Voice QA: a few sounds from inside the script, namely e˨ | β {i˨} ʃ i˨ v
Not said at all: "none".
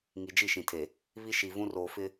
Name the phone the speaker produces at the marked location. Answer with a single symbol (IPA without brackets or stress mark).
i˦